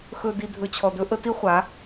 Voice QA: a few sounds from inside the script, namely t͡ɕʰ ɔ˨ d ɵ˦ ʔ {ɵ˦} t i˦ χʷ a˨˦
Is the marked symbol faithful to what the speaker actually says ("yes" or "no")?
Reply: no